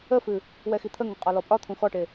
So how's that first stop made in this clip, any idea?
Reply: aspirated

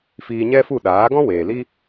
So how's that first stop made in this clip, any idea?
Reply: implosive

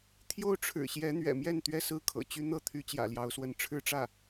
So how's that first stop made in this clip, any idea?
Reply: aspirated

